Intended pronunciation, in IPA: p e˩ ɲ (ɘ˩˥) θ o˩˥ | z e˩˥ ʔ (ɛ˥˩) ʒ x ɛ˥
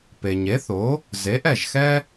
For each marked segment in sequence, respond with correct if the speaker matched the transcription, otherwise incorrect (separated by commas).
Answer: incorrect, correct